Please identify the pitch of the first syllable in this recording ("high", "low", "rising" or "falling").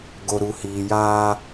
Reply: low